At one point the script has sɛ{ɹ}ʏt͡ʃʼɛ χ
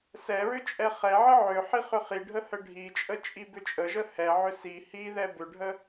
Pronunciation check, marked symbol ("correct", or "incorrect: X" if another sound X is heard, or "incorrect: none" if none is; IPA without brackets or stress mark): correct